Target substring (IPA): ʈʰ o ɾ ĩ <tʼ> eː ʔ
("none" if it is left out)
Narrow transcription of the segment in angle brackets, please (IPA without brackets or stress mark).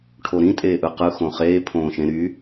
tʼ